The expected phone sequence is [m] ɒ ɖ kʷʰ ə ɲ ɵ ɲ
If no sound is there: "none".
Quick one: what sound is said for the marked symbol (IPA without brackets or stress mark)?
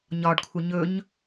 ɲ